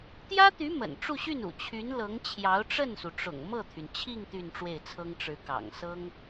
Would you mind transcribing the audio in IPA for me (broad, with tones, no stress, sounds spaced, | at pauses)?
t̪ j ä˥ t̪ y˧˥ m ə̰˨˩ n ʈ͡ʂ u˥˧ ɕ y˥˩ n ṵ˨˩ t͡ɕʰ y˧˥ n l ɤ˧˥ ŋ t͡ɕʰ j ɑ˧˥ ʊ̯ ʈ͡ʂ ə˥˩ n s u˩ ʈ͡ʂ ʊ̰˨˩ ŋ m ɤ˥˩ t̪ʰ y˩ n t͡ɕʰ i˥˧ ŋ t̪ y˥˧ n ʈ͡ʂ w e˥˩ ɪ̯ t͡sʰ ɤ˥ ŋ ʈ͡ʂ ɻ̩˧˥ k ɑ̰˨˩ ŋ s ɤ˥ ŋ